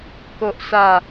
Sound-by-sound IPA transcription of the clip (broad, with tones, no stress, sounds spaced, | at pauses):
k o˨ ʔ s a˨˩